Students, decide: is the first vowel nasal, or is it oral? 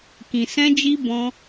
nasal